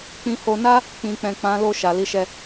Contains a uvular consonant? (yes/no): no